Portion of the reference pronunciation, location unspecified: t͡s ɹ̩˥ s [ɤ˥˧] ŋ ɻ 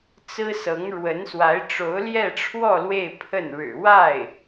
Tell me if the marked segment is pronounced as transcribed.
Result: no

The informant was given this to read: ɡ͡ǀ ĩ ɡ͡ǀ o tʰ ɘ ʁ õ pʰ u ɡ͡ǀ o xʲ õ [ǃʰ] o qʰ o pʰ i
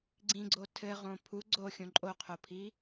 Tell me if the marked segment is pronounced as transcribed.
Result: no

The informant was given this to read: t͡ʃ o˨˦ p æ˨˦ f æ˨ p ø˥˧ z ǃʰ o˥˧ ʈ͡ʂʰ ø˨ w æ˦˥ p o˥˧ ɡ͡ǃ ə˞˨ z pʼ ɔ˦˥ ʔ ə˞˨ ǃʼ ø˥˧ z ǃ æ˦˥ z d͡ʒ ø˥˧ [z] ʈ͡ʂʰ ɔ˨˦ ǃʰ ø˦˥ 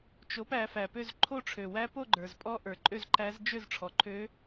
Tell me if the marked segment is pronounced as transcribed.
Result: yes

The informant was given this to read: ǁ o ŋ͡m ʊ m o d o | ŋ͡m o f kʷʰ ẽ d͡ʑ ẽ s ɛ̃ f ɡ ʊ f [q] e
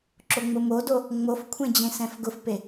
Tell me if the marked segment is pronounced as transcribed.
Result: no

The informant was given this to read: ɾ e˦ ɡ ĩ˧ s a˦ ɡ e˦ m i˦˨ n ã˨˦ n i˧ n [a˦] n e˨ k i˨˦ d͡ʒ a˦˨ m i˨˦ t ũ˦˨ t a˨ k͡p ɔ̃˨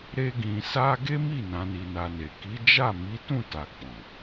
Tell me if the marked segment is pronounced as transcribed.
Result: no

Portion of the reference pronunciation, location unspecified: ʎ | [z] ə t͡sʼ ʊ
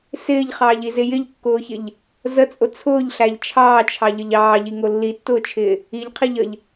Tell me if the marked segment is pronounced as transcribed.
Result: yes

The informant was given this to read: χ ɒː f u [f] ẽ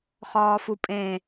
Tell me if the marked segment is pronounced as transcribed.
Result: no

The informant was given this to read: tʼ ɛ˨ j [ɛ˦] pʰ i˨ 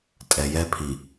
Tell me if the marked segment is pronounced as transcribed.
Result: yes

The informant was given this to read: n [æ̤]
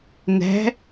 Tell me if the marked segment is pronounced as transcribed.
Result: yes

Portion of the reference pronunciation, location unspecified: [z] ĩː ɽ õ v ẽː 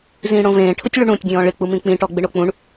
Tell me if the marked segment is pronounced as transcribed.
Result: yes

